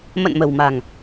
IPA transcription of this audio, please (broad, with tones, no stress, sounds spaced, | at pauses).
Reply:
m ə̰˧˨ n m ə̤˨˩ w m a̤˨˩ ŋ